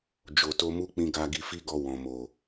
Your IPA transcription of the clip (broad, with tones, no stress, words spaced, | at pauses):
d͡ʒo˨to˧mu˦ k͡pĩ˧ɡa˧ ɡi˧fi˦ɡɔ˧ wɔ̃˨mo˨